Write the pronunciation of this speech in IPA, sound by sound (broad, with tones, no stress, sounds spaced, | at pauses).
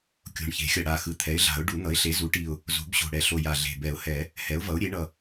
kʲ o̤˨˩ ɳ ç e̤˨˩˦ xʲ ʌ˨˩ ɽ a˨˩ x ɯ˩˥ t̪ʰ ɛ˩˥ ɪ̯ ɮ a̤˨˩˦ ʊ̯ ɖ u˨˩˦ n̪ ʌ˩˥ ɪ̯ ɬ e˩˥ z u˩˥ ʈ i˨˩ ʊ̯ | z o̤˨˩˦ b ɕ o̤˨˩ ɽ ɛ˨˩ ɬ o˨˩ j a˨˩ ɮ e̤˨˩ b ɛ˨˩˦ ʊ̯ h ɛ˨˩˦ | h ɛ˩˥ ʊ̯ v ʌ˩˥ ʊ̯ ɾʲ e˩˥ ɳ ʌ˨˩